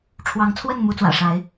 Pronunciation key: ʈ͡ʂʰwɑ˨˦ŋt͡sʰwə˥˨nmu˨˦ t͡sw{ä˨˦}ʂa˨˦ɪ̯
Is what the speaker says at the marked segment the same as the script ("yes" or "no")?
no